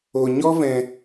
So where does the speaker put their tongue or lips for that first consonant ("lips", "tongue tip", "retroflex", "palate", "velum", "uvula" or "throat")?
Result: palate